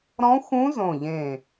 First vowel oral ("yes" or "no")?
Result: no